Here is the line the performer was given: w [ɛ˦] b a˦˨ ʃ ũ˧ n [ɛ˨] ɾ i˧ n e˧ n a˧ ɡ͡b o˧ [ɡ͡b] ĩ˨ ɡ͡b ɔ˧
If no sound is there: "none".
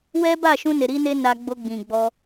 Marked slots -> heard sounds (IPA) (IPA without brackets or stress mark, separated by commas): ɛ˦, e˨, ɡ͡b